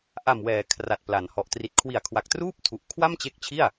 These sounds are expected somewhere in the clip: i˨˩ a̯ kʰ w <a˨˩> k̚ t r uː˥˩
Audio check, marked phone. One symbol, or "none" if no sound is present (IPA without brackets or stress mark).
a˨˩